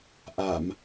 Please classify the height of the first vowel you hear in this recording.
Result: low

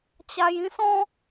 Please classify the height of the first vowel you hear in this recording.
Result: low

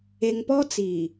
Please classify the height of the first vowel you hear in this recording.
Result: mid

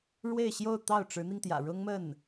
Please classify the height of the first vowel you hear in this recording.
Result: mid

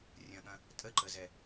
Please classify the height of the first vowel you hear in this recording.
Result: low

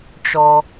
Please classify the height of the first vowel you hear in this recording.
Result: mid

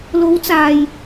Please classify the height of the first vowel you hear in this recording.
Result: mid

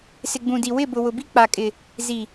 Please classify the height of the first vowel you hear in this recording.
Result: high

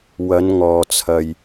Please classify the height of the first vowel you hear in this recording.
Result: low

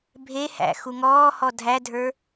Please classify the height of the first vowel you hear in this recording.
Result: mid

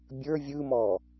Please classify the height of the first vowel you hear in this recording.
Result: mid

